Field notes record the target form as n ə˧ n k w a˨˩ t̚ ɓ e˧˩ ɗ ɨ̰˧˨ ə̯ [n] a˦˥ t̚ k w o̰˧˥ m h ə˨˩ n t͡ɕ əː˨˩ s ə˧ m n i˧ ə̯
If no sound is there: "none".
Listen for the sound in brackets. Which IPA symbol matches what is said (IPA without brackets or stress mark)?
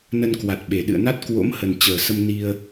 n